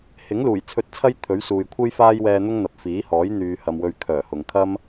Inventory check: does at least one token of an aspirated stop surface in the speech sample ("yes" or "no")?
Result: yes